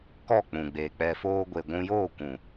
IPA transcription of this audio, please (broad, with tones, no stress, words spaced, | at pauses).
kɔ˦˨k͡pũ˨ɡ͡be˨ k͡pɛ˨foː˧ɡʷe˨ ɡʷũ˧joː˦˨kʷũ˨